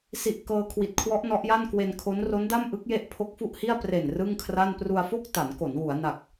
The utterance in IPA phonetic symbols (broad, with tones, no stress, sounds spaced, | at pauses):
s i˨˩ ʔ k ɤː˧ kʰ w i˨˩ t̚ kʰ w ɔ˦˥ ʔ n ɔ˦˥ ʔ j a˥˩ n k w e˧ n kʰ o˦˥ n r o˦˥ n d a˥˩ m ʔ ɯ˦˥ k̚ j e˦˥ ʔ pʰ o˦˥ k̚ f u˥˩ ʔ h i˥˩ a̯ p r e˨˩ n r ɯ˥˩ ŋ kʰ r a˥˩ n p r u˧ a̯ f o˥˩ k̚ t a˩˦ n k o˩˦ n w u˩˦ a̯ n a˨˩ k̚